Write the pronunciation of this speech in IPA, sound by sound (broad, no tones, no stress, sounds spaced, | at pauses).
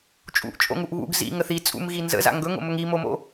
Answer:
t͡ʃʼ ṵ ʔ t͡ʃʼ o̰ ŋ u ʔ β ṵ ɡ z ḭ ŋ ə θ i t͡sʼ ṵ m ɣ i n z ə̰ z a̰ ŋ ɡ ɵ ŋ o̰ m ɵ ŋ i m o m o̰